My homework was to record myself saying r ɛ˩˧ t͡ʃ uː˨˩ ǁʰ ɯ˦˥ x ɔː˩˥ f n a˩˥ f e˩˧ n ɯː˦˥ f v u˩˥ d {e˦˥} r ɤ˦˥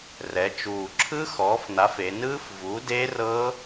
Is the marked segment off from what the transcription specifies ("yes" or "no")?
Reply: no